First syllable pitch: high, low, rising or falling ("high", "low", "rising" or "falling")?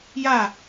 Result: falling